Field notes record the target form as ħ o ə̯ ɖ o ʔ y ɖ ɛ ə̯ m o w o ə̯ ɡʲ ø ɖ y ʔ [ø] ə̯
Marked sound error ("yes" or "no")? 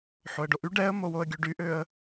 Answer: no